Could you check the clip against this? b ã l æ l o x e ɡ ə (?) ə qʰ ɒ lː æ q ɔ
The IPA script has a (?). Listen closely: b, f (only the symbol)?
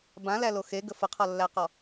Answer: f